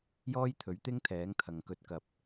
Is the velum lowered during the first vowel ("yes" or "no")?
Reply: no